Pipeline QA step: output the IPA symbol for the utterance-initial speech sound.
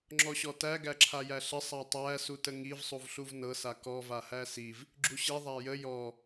ŋ͡ǁ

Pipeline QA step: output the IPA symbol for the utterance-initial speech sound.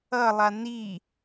ʌ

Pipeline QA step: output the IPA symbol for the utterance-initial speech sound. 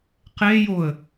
q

